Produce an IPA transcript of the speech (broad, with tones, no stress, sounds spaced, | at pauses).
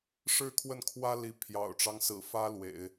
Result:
ʂ ɻ̩˥˧ kʰ w ə˥˩ n kʰ w ä˥ l i˧˥ pʰ j ɑ̰˨˩ ʊ̯ ʈ͡ʂ ɑ˦ ŋ s ɹ̩˨˩ f ä˥ l w ḛ˨˩˦ ɪ̯